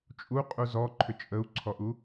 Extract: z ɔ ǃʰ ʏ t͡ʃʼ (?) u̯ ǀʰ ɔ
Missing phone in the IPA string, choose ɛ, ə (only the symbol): ə